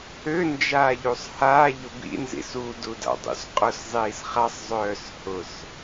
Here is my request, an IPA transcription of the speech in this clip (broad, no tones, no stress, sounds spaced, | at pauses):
ø n d͡ʒ aː ʎ u sˤ h a ʎ ʊ b ḭ n z ḭ s u d u d a̰ dˤ ṵ s qʼ ʊ s zˤ iː s χ a sˤ zˤ œː s h ʊ s